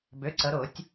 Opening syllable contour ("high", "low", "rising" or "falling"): rising